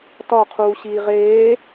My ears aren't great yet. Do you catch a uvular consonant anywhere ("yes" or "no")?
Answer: yes